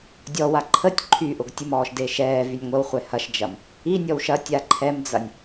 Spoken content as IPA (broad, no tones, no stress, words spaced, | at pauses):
dʲɔwa ǃʰətʲ ǃʰyʔʊɡ tʲʊmɔːʃde ʃɛːvynʲ ŋʷəwχʷɛ hɐʃd͡ʒɐm | inʲɔw ʃɐtʲa ǃʰɛmd͡zɐnʲ